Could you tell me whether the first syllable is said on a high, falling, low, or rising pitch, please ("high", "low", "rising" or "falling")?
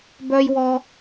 high